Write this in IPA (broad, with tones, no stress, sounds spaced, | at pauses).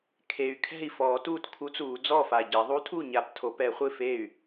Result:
kʰ e˨˩ y̯ kʰ ɛ̤˥˩ i̯ f ɔː˨˩˦ t uː˥˩ t kʰ u˧˥ t͡s uː˨˩˦ d͡z ɔː˥˩ f a˨˩ ɟ ɛ˨˩˦ ðˤ u˧˥ tʰ u˥˩ ɲ a˨˩˦ p tʰ o˨˩˦ p ɛ˨˩˦ χʷ ɪ˥˩ f e˥˩ y̯